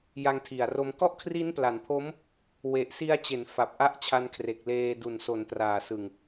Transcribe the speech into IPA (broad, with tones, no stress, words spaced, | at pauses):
ja˧ŋtʰi˨˩a̯ro˧m kɔ˥˩ʔkʰri˦˥npla˩˦npʰo˦˥m | we˨˩ʔsi˧a̯t͡ɕe˩˦n fa˨˩p̚ ʔa˥˩ʔt͡ɕʰa˧nkʰre˨˩k̚leː˧ du˨˩nso˨˩ntraː˨˩sɯ˨˩ŋ